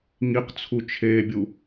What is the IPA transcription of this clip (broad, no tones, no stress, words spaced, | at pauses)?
ŋiqt͡sʰut͡ʃʰeːbʲu